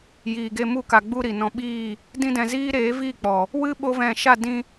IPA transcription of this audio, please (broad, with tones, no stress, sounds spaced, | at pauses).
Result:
j iː˨ ɡ e˧ m u˧ k a˨ ɡ͡b u˧ ɾ i˨ n ɔ̃˧ ɓ iː˦˨ | d ĩ˦ d ɛ̃˧ z iː˦ ɾ eː˨˦ v iː˦˨ k͡p ɔ˨ | w ɨ˦ ɓ o˦ v ɛ̃˦˨ ʃ a˦˨ d ĩ˧